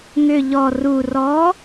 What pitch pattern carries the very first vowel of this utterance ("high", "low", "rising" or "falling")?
low